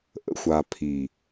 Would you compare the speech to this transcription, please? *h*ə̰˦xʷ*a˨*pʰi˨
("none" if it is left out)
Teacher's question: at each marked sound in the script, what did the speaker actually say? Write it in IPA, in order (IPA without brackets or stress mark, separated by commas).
ʔ, a˨